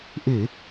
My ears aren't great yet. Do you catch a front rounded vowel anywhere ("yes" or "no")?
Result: no